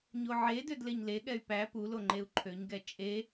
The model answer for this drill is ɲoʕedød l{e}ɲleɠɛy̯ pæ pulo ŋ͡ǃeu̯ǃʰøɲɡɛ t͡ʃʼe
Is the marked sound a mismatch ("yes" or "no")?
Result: no